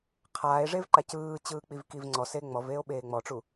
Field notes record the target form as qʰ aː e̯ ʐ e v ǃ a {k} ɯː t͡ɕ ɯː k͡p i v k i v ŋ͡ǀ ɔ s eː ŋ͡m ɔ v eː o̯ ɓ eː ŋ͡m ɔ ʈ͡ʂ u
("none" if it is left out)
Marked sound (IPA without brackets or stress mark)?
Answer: c